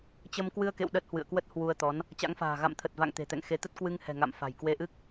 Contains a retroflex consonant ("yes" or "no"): no